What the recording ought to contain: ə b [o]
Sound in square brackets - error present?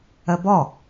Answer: yes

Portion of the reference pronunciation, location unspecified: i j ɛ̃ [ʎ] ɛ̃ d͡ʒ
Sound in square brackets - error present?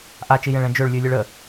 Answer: yes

